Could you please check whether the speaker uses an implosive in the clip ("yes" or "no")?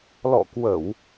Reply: no